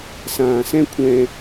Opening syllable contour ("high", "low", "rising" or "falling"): low